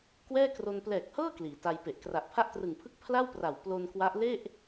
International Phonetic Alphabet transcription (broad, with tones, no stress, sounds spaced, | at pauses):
k w ɛː˥˩ k r o˧ n p l ɛː˨˩ k̚ h ɤː˥˩ k l iː˩˦ t a˧ j p e˨˩ ʔ k r a˨˩ ʔ pʰ a˥˩ ʔ t r ɯ˨˩ ŋ pʰ ɯ˥˩ k̚ pʰ l a˥˩ w p r a˨˩ w p l o˧ n k w a˦˥ ʔ l e˥˩ ʔ